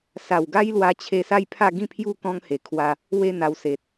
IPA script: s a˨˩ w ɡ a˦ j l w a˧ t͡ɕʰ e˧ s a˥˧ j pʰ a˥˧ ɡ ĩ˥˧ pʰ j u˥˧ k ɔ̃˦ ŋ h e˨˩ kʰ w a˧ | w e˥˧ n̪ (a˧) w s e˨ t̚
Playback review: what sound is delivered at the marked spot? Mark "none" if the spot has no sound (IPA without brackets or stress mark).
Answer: a˧